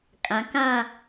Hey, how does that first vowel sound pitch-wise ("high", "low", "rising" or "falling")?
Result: rising